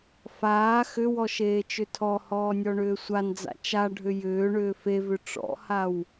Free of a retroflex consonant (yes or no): no